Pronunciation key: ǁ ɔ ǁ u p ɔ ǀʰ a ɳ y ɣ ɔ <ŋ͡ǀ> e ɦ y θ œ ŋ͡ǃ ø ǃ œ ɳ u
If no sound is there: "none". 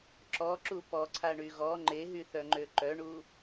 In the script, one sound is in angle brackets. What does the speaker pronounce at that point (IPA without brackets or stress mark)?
ŋ͡ǃ